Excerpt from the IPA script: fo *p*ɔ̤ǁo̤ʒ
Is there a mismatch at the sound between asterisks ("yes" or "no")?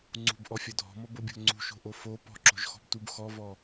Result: no